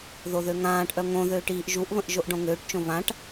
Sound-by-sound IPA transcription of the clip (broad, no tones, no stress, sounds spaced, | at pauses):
ð o ð ø ŋ ãː ʈ ʔ œ ŋ õ ð øː ʈ iː ʔ ʒ u ʔ β ə̃ ʔ ʒ o ʔ ɖ õ ŋ øː ʈ t͡ʃ õ β ã ʈ